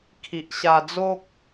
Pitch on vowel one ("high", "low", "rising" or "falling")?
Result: low